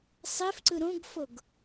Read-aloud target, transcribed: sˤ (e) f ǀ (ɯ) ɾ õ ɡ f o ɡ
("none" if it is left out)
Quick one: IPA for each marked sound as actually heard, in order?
e, ɯ

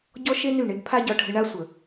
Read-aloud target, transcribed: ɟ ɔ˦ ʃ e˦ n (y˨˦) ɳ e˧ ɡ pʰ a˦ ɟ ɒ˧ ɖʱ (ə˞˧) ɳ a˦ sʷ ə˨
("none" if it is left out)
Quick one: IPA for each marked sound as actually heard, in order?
y˦˨, ə˧

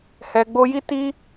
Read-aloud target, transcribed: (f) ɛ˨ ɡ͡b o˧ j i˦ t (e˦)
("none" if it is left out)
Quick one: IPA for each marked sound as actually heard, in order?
h, i˦

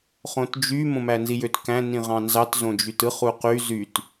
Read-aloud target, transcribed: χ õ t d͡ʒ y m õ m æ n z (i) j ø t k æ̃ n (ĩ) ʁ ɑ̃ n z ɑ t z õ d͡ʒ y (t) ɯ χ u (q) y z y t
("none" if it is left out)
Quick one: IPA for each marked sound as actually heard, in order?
i, ĩ, t, q

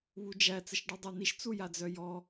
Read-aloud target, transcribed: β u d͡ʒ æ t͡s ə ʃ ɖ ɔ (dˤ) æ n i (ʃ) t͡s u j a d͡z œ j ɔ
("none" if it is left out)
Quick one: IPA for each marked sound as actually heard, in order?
dˤ, ʃ

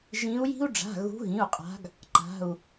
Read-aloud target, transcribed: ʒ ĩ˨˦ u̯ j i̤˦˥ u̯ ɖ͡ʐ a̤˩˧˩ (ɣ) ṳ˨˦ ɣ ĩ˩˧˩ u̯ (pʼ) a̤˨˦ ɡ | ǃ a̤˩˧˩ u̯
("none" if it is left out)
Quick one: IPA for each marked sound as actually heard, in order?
ɣ, qʼ

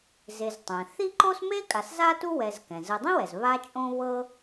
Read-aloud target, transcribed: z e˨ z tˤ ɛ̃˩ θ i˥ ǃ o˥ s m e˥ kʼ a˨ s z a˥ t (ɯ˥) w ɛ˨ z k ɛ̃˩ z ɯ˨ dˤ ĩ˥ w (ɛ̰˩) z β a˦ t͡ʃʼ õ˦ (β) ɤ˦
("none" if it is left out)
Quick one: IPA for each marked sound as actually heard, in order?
u˥, ɛ˩, β

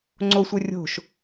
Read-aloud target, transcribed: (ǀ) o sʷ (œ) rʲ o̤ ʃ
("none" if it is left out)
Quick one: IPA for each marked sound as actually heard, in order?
ŋ͡ǀ, œ

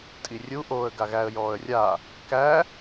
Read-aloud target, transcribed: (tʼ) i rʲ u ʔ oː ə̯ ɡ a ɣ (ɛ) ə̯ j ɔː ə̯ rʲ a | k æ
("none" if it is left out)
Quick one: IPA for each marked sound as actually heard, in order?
tʼ, æ

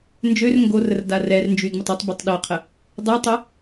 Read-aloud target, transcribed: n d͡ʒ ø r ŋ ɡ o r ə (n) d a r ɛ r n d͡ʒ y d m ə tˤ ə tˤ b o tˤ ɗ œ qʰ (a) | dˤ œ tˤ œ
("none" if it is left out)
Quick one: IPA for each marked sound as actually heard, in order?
r, ə

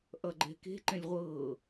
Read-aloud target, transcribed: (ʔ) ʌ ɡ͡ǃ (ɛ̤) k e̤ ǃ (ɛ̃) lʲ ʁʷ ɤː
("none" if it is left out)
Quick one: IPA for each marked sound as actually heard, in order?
ʔ, ɛ̤, ɛ̃

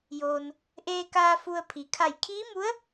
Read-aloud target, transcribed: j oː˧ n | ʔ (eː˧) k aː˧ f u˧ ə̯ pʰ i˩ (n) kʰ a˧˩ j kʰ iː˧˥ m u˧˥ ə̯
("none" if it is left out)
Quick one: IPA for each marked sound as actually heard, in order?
eː˧, none

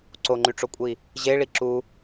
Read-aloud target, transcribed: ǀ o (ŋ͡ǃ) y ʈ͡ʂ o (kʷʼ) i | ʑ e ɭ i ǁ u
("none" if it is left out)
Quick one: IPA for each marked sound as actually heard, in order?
ŋ͡ǃ, kʷʼ

